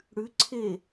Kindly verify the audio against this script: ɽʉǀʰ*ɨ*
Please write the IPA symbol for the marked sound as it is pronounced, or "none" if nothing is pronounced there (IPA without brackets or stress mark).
e